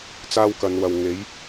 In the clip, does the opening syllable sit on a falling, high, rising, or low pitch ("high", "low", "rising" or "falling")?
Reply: high